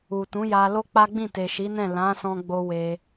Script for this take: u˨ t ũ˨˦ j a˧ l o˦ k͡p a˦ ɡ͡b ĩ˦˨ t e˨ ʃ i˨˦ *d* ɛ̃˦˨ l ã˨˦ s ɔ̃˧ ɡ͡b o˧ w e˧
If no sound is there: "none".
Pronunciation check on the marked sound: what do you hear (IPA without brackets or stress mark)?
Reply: n